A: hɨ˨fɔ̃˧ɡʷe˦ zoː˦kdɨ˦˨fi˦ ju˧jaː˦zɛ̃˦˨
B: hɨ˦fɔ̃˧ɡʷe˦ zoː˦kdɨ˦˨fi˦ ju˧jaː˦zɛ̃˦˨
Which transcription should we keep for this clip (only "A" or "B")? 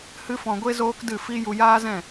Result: B